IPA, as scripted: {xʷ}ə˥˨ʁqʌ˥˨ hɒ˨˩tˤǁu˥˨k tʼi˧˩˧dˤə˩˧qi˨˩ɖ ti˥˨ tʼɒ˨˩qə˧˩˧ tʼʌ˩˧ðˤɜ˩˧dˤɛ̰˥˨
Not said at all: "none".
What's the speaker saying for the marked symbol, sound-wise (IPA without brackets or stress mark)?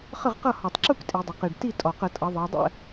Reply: χ